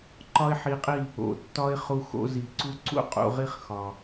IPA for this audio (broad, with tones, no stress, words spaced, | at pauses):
ǃɒ˦ɪ̯ħi˧qʼi˦˨ | o̰˨ tːɒ˦ɪ̯χu˧xo̰˧zi˨ ǀu˦ǀṵ˦qʼṵ˧ʁi˦χ xɒ˨